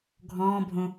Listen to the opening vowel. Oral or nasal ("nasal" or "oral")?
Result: nasal